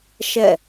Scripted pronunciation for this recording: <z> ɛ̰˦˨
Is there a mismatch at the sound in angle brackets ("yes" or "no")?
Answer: yes